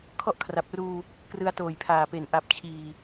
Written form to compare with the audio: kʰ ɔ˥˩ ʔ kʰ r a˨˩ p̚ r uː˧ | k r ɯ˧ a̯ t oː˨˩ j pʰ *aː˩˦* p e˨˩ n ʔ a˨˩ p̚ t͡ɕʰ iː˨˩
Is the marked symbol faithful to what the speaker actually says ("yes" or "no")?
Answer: no